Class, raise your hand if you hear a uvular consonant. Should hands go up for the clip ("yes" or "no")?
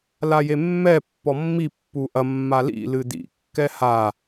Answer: no